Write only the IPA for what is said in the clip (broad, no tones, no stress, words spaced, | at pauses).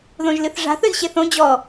ðõʒlɨθʐa̤ θɵzɕeθõ d͡ʑɔ